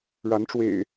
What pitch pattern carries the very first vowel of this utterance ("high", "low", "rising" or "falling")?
rising